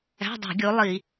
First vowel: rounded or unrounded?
unrounded